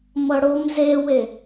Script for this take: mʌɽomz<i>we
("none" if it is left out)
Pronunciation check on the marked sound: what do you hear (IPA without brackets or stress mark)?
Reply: e